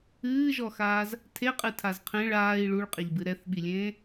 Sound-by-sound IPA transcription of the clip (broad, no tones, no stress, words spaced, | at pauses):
ɨːʒɔxaːz | tʰeqʼɨtʰaz qʰẽɭ aːi̯ ɭuɭqʼeʎbɨ ɾɛθɓilʲẽː